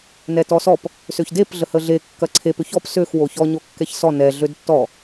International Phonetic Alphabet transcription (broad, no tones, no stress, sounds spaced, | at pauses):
n ɛ t ɔ s ɔ p | s ø ç d e p ɮ ə h ə ɮ e kː ɐ ǀʰ e p ʏ ç ɔ p s ø x w o ç ɔ ɲ o kː ɛ ç s ɔ n ɛ ɮ ø d tː ɔ